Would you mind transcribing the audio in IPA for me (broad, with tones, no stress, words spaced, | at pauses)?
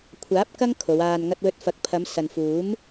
kʷʰaː˨˥p̚kɐ˥ŋ kʰo˨˧waː˧nŋɐ˥t̚wɵ˥t̚ fɐ˨k̚pʰɐ˨˧m sɐ˨nfuː˨˥m